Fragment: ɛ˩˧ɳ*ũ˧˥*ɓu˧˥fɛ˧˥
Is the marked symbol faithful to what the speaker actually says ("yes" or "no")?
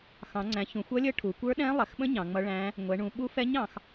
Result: no